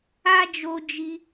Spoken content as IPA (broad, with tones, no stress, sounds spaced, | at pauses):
a˦ d͡ʒ o˦ d͡ʒ i˦